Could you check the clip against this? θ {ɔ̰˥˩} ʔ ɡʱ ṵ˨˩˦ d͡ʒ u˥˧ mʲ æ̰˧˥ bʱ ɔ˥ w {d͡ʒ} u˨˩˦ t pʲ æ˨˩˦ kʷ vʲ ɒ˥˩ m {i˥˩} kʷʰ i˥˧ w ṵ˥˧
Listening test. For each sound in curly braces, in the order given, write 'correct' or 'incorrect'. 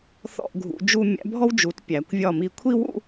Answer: correct, correct, correct

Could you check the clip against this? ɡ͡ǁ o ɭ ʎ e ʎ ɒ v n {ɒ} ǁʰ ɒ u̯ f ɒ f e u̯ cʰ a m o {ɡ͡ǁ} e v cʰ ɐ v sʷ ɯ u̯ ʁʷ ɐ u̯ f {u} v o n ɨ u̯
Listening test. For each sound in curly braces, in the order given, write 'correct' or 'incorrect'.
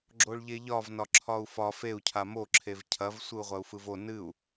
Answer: correct, incorrect, incorrect

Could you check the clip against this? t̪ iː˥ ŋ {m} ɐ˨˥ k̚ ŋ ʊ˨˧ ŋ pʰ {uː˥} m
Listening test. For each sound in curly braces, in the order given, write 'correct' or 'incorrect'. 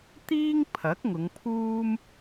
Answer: incorrect, correct

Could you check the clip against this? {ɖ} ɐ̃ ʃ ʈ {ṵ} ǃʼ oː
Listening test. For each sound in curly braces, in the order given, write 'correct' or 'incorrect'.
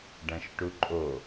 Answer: correct, incorrect

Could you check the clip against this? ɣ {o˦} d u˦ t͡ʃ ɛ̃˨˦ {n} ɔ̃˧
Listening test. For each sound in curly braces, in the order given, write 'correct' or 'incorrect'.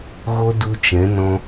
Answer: correct, correct

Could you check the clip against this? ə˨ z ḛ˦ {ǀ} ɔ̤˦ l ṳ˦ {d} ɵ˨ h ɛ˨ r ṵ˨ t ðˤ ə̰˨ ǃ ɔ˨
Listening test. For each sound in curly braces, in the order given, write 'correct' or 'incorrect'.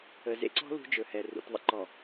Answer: correct, incorrect

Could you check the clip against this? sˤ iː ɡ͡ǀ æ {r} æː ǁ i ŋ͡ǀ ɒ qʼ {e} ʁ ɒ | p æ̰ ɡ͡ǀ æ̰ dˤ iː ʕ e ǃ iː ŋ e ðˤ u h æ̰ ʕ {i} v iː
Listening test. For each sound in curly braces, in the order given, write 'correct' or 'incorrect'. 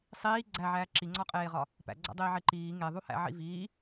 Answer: incorrect, incorrect, incorrect

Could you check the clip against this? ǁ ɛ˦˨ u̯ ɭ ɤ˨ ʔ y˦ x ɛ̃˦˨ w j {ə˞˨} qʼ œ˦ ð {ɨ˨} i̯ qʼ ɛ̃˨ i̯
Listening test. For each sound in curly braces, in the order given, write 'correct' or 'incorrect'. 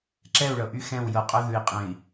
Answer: incorrect, incorrect

